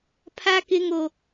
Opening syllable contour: high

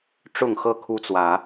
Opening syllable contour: falling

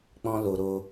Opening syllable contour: high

